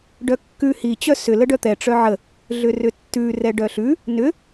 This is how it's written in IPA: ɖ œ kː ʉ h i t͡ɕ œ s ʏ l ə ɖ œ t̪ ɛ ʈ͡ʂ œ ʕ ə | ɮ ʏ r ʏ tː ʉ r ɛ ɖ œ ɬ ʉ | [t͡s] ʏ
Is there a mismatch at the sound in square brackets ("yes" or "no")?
yes